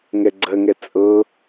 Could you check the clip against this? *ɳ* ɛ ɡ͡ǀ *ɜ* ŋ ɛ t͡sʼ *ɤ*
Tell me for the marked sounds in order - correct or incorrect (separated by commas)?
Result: incorrect, correct, correct